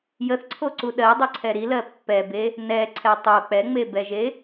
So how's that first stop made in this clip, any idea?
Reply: click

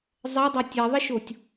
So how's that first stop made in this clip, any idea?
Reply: plain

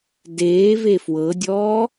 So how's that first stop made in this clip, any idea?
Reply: plain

